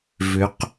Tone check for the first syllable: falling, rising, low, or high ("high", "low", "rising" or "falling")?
rising